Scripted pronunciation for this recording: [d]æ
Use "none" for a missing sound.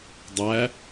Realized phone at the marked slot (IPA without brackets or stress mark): dˤ